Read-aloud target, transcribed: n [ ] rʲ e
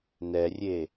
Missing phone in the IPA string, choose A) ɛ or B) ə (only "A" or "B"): A